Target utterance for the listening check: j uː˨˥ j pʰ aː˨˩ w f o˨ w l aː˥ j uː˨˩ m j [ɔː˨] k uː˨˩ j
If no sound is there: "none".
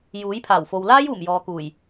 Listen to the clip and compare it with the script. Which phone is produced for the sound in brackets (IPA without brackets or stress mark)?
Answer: ɔː˨